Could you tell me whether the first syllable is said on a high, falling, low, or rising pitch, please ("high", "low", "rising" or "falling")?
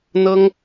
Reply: high